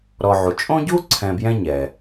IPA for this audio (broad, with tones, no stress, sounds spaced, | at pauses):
ɾ ɔ˨ ʕ u˩ t͡ʃʼ õ˥ ɟ u˥ ǀʰ ɛ̃˨ b j ɛ̃˦ ɲ ɛ˩